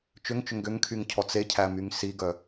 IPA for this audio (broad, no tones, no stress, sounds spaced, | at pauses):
t͡ʃ ʏ ŋ t͡ʃ ʏ ŋ ɡ ʏ ŋ kʰ y ŋ cʰ ɔ t͡s e cʰ æ m y ŋ s i ɡ œ